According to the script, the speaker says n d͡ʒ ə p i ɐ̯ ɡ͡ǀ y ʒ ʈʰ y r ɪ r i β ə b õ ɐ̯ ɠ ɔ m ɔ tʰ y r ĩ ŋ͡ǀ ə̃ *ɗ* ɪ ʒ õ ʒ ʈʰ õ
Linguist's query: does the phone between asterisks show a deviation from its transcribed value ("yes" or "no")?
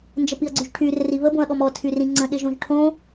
no